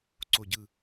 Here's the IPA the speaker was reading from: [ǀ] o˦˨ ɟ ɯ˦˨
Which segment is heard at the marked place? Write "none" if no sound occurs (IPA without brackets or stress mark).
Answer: ǀ